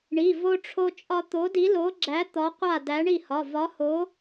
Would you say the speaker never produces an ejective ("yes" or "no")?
no